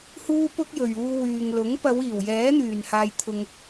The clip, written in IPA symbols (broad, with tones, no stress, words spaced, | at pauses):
huː˥pʊ˥k̚jɵ˨ɥ uː˧wyː˨ŋlʊ˨˥ŋ pɐ˨˧wiː˨˩w jɛː˨˥n̪yː˨˩nhaː˨j t̪ʰʊ˨ŋ